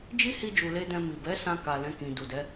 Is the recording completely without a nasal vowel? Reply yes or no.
no